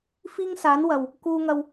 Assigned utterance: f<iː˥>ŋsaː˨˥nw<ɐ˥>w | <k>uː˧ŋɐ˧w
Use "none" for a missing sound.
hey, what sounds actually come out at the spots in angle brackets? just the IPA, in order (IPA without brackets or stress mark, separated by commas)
iː˥, ɐ˨, k